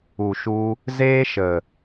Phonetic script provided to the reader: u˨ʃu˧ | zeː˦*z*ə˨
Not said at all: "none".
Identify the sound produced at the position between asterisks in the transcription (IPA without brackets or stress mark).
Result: ʃ